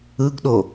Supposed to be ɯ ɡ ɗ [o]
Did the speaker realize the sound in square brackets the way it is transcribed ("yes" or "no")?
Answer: yes